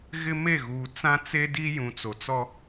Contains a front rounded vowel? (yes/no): no